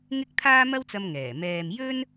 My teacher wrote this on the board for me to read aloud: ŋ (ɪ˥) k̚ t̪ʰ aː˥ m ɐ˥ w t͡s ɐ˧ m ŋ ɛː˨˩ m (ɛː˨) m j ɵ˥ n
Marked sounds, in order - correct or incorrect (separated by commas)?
correct, correct